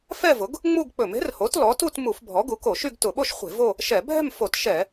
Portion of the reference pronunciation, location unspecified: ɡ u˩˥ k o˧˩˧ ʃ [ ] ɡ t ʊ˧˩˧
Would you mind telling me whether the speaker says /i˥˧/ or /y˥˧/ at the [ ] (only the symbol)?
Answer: y˥˧